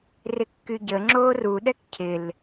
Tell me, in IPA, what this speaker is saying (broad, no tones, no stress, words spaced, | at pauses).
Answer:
rɪkːyɟə ŋ͡ǁoːru ɗɛkcʰɪl